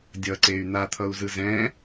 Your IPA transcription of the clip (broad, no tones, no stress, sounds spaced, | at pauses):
dʲ ʌ ǀ e y̯ n̪ a t̪ʰ ʌ u̯ z ɯ z ɛ̃